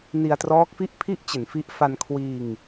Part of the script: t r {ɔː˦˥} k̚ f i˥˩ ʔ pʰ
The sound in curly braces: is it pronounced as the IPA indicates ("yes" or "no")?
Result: yes